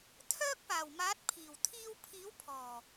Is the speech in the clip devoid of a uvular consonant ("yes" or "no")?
yes